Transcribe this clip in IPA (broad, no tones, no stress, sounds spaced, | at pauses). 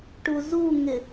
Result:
ʈ u z u ŋ ɪ